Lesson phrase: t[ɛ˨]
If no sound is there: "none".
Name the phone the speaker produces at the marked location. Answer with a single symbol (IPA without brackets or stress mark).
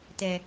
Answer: ɛ˨